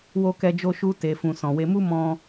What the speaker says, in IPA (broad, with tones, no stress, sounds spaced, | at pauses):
w o˧ k ɛ˧ d͡ʒ o˧ ʃ u˧ t e˨ f ũ˨ s ɔ̃˨ w e˧ m u˦ m ɔ̃˧